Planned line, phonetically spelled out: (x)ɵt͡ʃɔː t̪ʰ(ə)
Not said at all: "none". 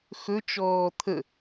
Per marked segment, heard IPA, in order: x, ə

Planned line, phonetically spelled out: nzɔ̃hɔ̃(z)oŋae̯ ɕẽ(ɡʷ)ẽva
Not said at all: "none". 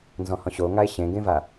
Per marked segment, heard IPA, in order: ɕ, ɡ

